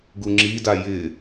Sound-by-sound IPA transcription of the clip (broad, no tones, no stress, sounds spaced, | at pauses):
ɡ u ŋ͡ǁ i d a j ɪ